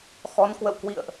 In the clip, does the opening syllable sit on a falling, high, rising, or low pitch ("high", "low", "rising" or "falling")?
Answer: rising